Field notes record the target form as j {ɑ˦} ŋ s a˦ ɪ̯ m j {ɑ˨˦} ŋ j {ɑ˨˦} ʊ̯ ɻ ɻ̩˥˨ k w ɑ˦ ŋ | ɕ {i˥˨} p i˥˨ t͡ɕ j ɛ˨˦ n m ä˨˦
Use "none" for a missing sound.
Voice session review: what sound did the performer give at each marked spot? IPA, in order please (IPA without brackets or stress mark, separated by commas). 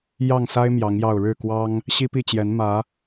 ɑ˥˨, ɑ˨˦, ɑ˥˨, i˦